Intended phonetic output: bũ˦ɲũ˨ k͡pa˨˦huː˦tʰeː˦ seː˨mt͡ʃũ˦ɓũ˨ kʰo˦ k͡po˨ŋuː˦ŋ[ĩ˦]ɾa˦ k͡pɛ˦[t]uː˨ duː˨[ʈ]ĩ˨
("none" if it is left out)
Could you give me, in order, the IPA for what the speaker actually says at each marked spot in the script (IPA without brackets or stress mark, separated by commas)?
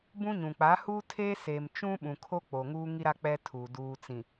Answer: i˦, tʰ, t͡s